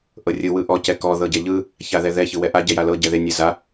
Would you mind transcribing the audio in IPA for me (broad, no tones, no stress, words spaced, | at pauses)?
ʔɤrʲɯ wɯʔɔ cɛkɔ ðɤɟɛʎɯ | çaðɛðɛ çɯwɛʔa ɟɛjalɤ ɟɛðe nʲeza